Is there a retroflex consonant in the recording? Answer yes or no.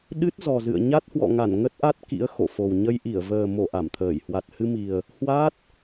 no